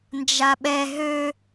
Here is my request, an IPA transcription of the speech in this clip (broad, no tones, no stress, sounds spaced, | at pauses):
n d͡ʒ a ɓ ɛ ɦ ø